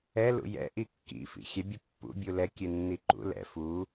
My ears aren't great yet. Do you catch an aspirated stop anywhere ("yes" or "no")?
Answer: no